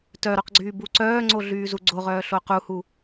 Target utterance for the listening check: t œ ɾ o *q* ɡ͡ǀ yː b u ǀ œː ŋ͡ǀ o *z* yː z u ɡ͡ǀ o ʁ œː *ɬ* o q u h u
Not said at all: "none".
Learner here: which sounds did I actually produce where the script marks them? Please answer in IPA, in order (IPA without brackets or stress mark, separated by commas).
q, ɮ, ɬ